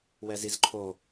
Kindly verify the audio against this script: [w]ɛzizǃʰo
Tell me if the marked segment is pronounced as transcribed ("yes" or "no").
yes